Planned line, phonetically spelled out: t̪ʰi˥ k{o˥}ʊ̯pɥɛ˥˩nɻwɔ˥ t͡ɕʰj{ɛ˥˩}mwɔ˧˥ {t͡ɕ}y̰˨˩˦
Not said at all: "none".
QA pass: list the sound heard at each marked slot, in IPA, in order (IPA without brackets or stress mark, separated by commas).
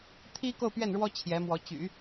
o˥˧, ɛ˧˥, t͡ɕ